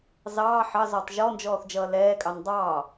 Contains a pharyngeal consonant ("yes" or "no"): yes